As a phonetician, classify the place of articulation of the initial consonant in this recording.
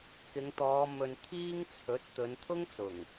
velar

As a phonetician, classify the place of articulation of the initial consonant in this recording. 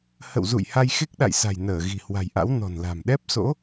glottal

